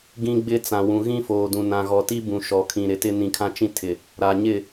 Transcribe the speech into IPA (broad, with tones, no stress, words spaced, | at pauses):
ɡĩ˦ɡ͡bɪ˦ t͡sã˨wũ˨ ɣĩ˦foː˨dũ˨ nã˨ɣɔ˨ti˦bũ˨ ʃɔ˨kʰĩ˨ ɾɪ˨tɪ˦ nĩ˨ kʰã˦t͡ʃĩ˦tʰɪ˨ | ɾa˨ɲɪ˦˨